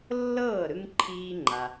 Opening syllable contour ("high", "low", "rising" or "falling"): falling